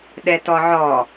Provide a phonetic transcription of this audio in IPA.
ɗɛtɔʕɔ

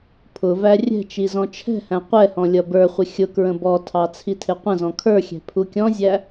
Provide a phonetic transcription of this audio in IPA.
pʰʊvæ rʲɛ̤t͡ʃi zɔ̃t͡ʃʰɛ̤hæ̃ qʷɛhɔ̃ lʲʌbə˞χʷɪ xʲʊkɹə̃ bɔtʰɑ t͡sʰitʰɪqʷə̃zɔ̃ kʰə˞xʲɛ̤ pʰukʲɔ̃zʲæ

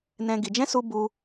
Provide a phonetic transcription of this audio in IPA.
nɛ̃˦ɡi˧ d͡ʒɛ̃˦su˧ bu˧

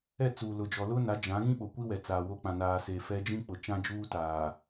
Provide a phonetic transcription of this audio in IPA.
ɛ˦˨t͡suː˨lʊ˨d͡ʒɔ˨ lʊ˦na˨˦d͡ʒã˨˦ɣĩ˦ ɓo˨kʷi˦wɛ˨ t͡saː˨wo˦ k͡pã˨naː˨seː˨ fɛ˦ d͡ʒĩ˦k͡pʊ˨ t͡ʃã˦d͡ʒuː˦taː˨

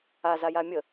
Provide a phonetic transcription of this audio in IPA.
azaja mʲə

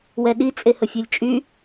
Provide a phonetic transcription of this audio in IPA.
wɛɗi t͡sʼehəfʲølʲt͡ʃʼy

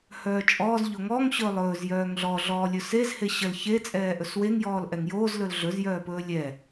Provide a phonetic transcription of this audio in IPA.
hœːt͡ʃʼɔːz ʎoŋɔŋ ɕɵːlˠɵːz jœːŋɮɔ ɮɔːlʲɵsez heɕəl çe t͡sʼɛːʔɵsweŋ jɔːlʔɛŋjoːz lɵlɮɵz jœːpɵːlʲɛ

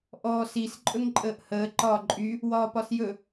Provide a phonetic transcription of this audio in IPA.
ʔɔːsis ǃʼɵŋǃʼəːʔhəː ǃɒːǃʼy | wɒːpɒsjɵ

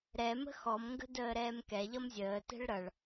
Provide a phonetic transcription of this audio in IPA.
ɾɛmə̤ xɔmŋɡə̤ dəːɾɛːmkɛʎʌm zʲəːtɛ̤ɭ ɾʌɭ

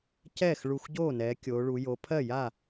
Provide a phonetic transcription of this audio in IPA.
cɛː˥˩x ɭu˧˩xɟoː˥˩nɛː˩˧ kʲoː˩˧ɭu˩˧ jo˩˧pʰɜ˥˩ja˥˩

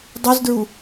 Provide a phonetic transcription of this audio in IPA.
dˤuzdɹu

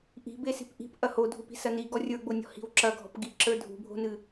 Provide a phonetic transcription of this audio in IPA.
ʔi̤be si̤pʔi̤p ʔɐhodʱupi̤ sɐni ɡɔrʲə˞ɡ͡bonʲɔ̤ hi̤wǁɐ ɡʱɔ̤pɡi ǁə˞dʱṳbʱo̤nɨ

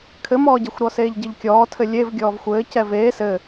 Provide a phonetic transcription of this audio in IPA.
kʰɘmɔːɟɛxʷɾɔ seːʎɟɘʎkʲɔːtʰɘ lʲev ɡʲɔːvxʷɘː cɛveː sɘ

